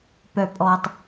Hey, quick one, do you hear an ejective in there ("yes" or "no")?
yes